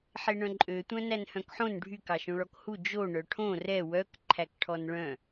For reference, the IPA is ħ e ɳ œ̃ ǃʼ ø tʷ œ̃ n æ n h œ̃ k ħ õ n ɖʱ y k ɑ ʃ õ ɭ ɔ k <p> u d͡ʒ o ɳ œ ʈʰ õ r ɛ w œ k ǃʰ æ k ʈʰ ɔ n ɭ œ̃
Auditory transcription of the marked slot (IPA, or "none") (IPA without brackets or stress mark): h